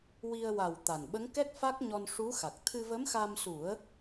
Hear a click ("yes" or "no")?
no